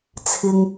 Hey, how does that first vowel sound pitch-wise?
low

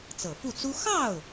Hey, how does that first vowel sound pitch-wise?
low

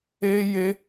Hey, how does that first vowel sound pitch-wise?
high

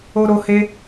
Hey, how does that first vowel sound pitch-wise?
high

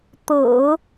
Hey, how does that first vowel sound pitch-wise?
low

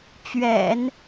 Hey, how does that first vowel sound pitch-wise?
low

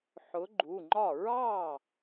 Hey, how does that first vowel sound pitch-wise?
rising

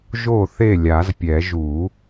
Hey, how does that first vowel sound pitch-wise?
falling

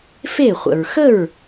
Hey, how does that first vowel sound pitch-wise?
falling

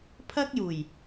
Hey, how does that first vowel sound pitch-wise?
high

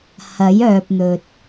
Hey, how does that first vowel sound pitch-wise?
rising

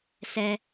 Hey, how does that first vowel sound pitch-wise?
high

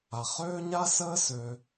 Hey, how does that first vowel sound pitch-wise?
low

